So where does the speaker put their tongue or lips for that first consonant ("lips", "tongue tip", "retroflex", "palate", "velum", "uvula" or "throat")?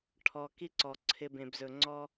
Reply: retroflex